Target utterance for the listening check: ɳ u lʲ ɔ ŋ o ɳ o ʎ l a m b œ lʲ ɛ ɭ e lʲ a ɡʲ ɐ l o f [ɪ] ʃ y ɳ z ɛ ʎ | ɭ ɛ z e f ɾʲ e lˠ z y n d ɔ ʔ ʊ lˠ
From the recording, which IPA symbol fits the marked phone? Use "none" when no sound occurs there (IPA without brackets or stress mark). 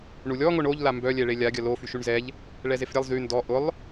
y